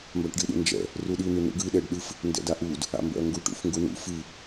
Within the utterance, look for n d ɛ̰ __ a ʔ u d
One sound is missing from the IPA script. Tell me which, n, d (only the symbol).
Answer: d